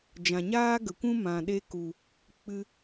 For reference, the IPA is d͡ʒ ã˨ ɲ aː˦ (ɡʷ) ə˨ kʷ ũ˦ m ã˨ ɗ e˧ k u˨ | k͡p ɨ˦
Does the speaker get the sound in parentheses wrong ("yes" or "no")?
yes